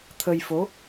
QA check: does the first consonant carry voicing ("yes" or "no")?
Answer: no